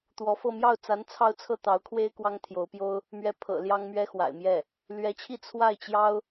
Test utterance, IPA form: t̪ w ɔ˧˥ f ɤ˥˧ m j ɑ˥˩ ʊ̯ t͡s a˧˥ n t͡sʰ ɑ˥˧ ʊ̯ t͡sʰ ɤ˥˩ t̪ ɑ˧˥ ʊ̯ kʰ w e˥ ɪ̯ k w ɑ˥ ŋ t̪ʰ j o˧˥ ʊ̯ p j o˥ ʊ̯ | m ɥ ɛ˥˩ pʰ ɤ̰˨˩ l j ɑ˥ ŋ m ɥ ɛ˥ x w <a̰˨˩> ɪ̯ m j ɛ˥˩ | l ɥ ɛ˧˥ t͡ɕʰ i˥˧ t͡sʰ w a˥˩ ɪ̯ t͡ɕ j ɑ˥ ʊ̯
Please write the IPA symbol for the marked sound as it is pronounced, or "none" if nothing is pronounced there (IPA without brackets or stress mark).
a̰˨˩